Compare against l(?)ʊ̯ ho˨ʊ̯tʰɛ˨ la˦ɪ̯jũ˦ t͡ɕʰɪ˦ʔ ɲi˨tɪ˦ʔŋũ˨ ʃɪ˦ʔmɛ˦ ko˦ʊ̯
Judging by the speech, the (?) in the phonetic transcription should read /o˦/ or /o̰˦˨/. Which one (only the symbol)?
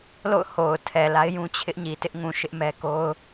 o̰˦˨